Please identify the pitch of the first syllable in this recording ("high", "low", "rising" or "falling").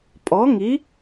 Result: rising